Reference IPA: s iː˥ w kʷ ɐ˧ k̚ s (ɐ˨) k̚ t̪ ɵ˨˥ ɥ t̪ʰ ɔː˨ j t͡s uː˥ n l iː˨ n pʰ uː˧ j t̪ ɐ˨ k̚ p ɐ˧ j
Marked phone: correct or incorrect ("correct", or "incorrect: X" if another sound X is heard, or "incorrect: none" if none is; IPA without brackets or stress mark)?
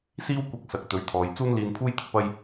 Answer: correct